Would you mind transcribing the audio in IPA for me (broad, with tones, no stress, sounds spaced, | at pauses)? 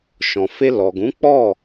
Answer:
ʃ ɔ̃˨ f e˧ l ɔ˨ ɡ ũ˨˦ k͡p ɔ˦˨